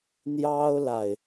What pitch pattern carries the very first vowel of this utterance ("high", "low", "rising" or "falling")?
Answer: high